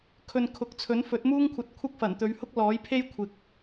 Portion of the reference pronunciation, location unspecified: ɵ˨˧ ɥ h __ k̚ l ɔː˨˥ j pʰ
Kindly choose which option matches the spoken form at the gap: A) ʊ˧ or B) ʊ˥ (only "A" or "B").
B